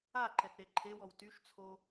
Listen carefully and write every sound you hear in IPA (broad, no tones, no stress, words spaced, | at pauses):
aǃɛtɾe ǃʰewɔw tyʃt͡sʰo